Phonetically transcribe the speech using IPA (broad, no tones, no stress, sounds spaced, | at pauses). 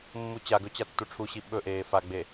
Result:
mː u t͡ɕ a ɡ ɵ t͡ɕ a tː u ʈ͡ʂʰ u ɕ i ɓ ɵ ʔ eː f a ɡ͡b e